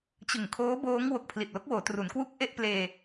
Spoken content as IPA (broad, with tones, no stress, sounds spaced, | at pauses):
t͡ɕ ɯ˨˩ ŋ kʰ oː˦˥ b oː˦˥ ŋ w o˨˩ k̚ pʰ l i˨˩ t̚ l o˦˥ k̚ w oː˩˦ t r u˩˦ n k w u˥˩ k̚ ʔ e˥˩ ʔ p l eː˧